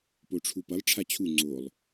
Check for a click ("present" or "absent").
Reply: present